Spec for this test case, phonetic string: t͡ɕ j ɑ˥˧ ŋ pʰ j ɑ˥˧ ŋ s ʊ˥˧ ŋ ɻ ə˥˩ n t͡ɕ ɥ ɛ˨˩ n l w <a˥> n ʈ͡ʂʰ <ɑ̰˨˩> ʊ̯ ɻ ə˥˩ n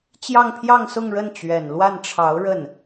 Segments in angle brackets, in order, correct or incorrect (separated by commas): incorrect, incorrect